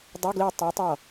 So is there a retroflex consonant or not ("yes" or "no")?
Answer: no